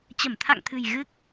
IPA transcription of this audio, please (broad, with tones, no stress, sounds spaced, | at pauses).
t͡ɕ ə˧˩ m t̪ʰ a̰˧˨ ŋ t̪ʰ ɨ̤˨˩ j ɣ ɨ˦˥ k̚